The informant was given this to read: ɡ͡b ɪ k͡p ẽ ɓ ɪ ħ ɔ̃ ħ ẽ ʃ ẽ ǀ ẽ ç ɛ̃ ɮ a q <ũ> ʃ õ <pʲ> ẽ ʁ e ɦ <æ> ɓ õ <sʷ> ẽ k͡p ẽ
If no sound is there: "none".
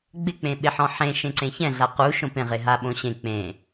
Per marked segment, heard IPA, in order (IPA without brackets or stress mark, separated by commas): u, p, a, ɕ